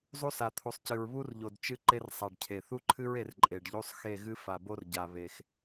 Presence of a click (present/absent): present